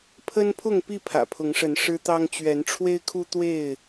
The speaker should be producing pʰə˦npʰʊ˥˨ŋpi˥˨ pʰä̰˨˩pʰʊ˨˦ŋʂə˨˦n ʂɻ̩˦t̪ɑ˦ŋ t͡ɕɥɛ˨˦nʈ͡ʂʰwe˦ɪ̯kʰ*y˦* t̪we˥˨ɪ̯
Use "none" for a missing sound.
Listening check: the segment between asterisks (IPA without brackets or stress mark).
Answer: u˦